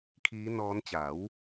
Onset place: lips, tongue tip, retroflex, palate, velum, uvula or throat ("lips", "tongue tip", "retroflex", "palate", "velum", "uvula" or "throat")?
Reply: velum